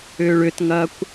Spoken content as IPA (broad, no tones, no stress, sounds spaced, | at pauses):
ʏː ɭ ʏ t ŋ ɐː kʷ